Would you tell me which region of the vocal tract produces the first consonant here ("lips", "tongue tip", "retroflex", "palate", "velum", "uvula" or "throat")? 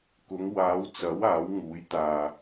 velum